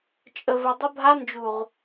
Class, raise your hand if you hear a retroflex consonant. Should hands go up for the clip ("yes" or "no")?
no